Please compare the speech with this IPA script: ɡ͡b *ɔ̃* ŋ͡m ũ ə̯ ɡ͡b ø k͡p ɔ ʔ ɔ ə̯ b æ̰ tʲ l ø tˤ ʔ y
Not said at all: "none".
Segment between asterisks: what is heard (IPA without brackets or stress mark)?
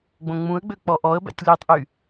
õ